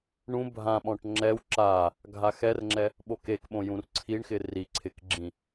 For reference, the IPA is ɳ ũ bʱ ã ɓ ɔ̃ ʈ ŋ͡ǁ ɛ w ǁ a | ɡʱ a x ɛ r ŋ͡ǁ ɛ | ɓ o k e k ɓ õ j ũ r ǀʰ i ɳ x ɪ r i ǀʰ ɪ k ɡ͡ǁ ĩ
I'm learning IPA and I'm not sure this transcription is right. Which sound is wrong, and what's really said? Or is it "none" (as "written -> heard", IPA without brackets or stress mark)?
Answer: none